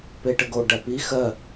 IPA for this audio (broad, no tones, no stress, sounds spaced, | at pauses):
p e ʈ ə ɡ o ɖ æ p i x ɜ